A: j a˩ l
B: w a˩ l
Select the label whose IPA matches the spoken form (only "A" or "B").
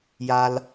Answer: A